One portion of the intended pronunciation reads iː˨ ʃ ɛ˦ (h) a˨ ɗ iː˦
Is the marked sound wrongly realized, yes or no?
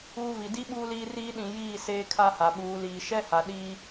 no